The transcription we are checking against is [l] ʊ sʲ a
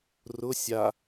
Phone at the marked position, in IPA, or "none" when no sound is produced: r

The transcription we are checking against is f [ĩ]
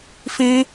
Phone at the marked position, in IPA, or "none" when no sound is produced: ĩ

